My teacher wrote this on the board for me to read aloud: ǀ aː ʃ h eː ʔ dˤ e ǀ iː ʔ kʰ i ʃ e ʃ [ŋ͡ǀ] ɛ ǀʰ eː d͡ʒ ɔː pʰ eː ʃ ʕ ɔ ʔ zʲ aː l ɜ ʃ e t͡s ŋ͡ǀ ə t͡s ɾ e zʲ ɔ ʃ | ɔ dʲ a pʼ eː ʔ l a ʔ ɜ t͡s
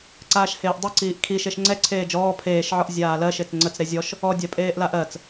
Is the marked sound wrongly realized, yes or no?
no